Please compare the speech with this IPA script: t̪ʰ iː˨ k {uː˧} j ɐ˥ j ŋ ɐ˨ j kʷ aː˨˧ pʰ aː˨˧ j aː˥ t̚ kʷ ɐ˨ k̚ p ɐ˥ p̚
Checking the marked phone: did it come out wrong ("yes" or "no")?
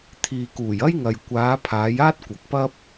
yes